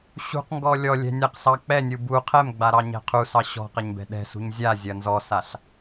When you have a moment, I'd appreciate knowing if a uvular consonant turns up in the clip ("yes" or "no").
yes